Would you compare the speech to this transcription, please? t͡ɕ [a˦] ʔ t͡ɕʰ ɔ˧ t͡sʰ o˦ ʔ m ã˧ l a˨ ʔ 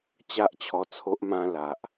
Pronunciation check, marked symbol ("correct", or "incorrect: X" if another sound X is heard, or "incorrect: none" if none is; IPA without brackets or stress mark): correct